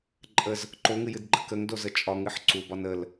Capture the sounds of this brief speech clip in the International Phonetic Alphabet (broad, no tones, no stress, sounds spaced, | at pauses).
ǃʼ ə z | ǃ o ŋ ɨ j ɨ d ɡ͡ǃ ə k ə ŋ d o z ə t͡ʃʼ ɒ ŋ ɨ ħ ǀ u b ɒ n ə l